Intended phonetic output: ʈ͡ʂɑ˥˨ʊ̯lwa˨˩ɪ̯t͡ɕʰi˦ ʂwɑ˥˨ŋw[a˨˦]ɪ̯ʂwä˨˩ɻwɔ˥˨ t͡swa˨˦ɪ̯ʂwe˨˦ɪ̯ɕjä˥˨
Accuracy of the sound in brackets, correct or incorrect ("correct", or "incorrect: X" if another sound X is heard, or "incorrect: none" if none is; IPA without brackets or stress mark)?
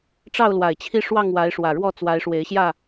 correct